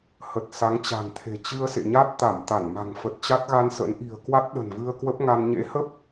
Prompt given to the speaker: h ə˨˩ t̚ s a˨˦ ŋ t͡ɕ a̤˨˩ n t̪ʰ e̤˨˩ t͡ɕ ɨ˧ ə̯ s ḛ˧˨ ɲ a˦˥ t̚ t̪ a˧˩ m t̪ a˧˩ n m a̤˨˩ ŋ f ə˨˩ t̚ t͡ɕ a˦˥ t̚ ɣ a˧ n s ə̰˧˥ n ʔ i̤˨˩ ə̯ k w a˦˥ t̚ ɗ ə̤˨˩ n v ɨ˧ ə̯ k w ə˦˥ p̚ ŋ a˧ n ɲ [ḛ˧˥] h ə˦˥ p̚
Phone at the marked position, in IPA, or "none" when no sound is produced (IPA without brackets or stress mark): ḛ˧˥